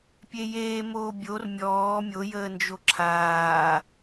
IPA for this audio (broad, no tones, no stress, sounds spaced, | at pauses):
pʲ e j eː m oː bʲ o r mʲ ɔː mʲ o j əː n d͡ʒ o ǁʰ aː